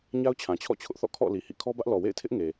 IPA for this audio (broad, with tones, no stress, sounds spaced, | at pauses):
ɲ a˦ ʊ̯ t͡ɕʰ ã˨ t͡ɕʰ ɔ̰˦˨ t͡ɕʰ ʊ˦ ʔ θ ɔ̰˦˨ kʰ ɔ̰˦˨ l i˨ h ḭ˦˨ kʰ ɔ˦ b ä˦ ʔ l ɔ˨ w ḛ˦˨ ɪ̯ tʰ ɪ˦ ʔ ŋ e˨